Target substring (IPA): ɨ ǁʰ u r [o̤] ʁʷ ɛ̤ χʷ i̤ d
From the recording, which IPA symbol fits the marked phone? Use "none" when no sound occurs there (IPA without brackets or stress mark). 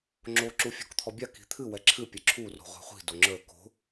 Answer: o̤